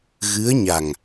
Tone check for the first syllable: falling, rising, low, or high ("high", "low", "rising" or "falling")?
rising